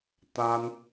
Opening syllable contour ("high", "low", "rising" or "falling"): high